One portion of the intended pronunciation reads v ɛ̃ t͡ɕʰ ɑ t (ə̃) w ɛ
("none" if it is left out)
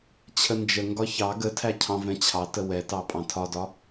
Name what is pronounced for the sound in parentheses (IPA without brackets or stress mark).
ə